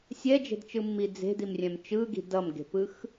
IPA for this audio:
sʲ ɛ d͡ʒ e̤ d t͡ʃ ɯ mː i d͡z e̤ d i m rʲ ɛ̃ m t͡ʃ ɯ ɡ i̤ d ʌ m ɡ e̤ p ɯ x

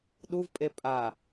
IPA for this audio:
ɗ u v pʼ e pʼ a

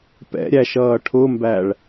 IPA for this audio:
p ɛ̰ ɾʲ æ ʃ ʌː ʈʰ ʊ m b æ ɭ

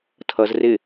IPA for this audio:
tʰ ʌ z r ɪ

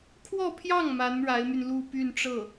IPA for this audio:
kʰ w ɔ˥˧ pʰ j ɑ˥˩ ŋ m a˧˥ n ɻ a˧˥ ɪ̯ m y˧ n l u˥˧ p y˥˧ n ʈ͡ʂ ɤ˥˩

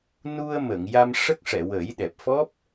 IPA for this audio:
n u˧ ə̯ m ə˨˩˨ ŋ j a˧ m ʂ ə˦˥ k̚ ʂ ɛ˨˩˨ w ə˨˩˦ j ɗ ɛ˨˩ p̚ f ɔ˦˥ p̚

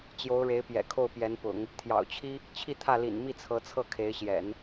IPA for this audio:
t͡ɕ j o˧˥ ʊ̯ ɻ e˧˥ ɪ̯ p j ɛ̰˨˩ kʰ o˥˩ ʊ̯ p j ɛ˧˥ n p ʊ̰˨˩˦ ŋ | t̪ʰ j ɑ̰˨˩ ʊ̯ t͡ɕʰ i˥ | t͡ɕʰ i˥˧ t̪ʰ ä˥˩ l ḭ˨˩ n m i˥˩ t͡sʰ ɤ˧˥ t͡sʰ ɤ˥˩ kʰ e˧˥ ɪ̯ ɕ j ɛ̰˨˩˦ n

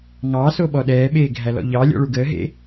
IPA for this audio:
ŋ ɑː s o ɓ ɔ ɗ ɛː ɓ eː ɡʱ æ l ɔ̰ ʎ ɑ lʲ ɔ̰ ɭ u ɡ əː ɦ ḛ

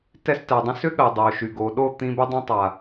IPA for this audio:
t ɛ˧ s t ɛ˨ dˤ ĩ˧ s ʏ˦ ɠ ɜ˨ dˤ o˨ ʃ y˨ ɡ o˨ ɗ o˦˨ t̪ ĩ˧ b ʏ˧ dˤ ĩ˧ tˤ a˨

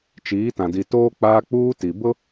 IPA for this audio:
t͡ʃ iː˨˦ t ã˨ d i˨ t oː˦ k͡p aː˦ k͡p uː˦ t i˨ b ʊ˦

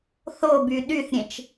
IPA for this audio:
θ o b y ɗ y θ ɾʲ ẽ t͡ʃ

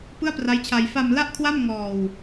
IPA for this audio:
p ɯ˥˩ a̯ p r a˦˥ j t͡ɕʰ a˧ j f a˧ m l a˥˩ ʔ kʰ w a˥˩ m ŋ ɔː˧ w

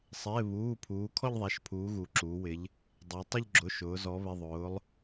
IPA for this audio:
sˤ ɪː˩˧˩ β uː˩˧˩ pʰ uː˩˧ kʰ ɔ˥˧ ʎ ðˤ æ˩˧˩ ʃ pʰ uː˩˧ ɣ u˩˧ ǁ uː˩˧ w ɪ˩˧ ʎ | dˤ æ˩˧ tˤ ʊ˥˧ ʎ ɡ͡ǁ ʊ˩˧˩ ʃ ʊː˩˧ z ɔ˩˧ β ɪ˩˧˩ ðˤ ʊː˩˧ lˠ

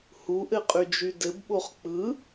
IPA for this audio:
h u ʔ ɘ qʼ y d͡ʒ y d ɘ b ɓ o χ k͡p ɯ

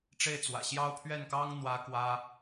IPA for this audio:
ʈ͡ʂ e˥˩ ɪ̯ t͡s w ä̰˨˩ ɕ j ɑ˥ ʊ̯ pʰ ɥ ɛ˥˩ n k ɑ˥ ŋ n̪ w ä˥ k w ä˥

